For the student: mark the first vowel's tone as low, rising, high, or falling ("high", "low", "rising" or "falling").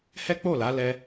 high